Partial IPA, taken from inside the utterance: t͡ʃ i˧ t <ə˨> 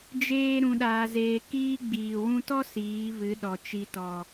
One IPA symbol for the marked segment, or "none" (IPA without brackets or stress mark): ɔ˨